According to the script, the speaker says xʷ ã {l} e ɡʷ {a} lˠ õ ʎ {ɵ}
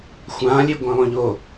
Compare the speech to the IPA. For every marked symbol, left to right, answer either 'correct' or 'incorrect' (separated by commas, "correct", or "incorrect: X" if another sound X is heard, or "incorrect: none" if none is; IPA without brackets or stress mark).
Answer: incorrect: lʲ, incorrect: ã, incorrect: o